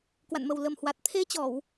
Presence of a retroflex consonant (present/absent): absent